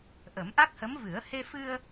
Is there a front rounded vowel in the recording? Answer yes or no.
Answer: no